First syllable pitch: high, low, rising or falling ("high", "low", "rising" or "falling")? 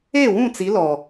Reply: falling